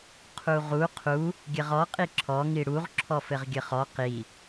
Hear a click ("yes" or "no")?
yes